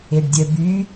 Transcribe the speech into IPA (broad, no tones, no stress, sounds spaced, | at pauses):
e ɖ dʲ œ b y